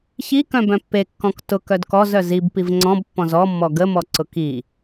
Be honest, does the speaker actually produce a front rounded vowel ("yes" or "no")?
yes